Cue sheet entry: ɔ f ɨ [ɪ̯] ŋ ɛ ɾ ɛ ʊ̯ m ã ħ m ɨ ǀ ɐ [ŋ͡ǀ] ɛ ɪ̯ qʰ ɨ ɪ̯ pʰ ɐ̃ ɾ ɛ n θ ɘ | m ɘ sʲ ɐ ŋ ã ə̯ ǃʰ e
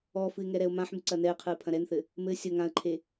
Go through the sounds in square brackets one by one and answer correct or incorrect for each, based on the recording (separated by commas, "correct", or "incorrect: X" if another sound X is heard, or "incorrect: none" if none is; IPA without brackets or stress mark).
correct, incorrect: n